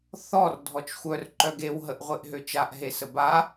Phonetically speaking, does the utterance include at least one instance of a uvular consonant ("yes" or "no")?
yes